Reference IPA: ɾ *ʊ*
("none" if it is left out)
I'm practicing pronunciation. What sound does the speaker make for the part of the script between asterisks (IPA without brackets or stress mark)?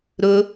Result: ʊ